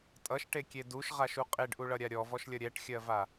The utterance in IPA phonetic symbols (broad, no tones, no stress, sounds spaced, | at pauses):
tʼ ʌ ʃ ʈ e kʲ e d u ʃ ʁ a ʃ u qʼ e ɖ ʔ u ɭ ʌ ɾʲ a ɾʲ ɔ v ɔ ʃ lʲ ʌ ɾʲ ɛ ʈ xʲ ɜ v a